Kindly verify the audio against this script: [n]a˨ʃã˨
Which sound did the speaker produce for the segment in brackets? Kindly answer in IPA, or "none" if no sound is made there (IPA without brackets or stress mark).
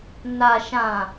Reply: n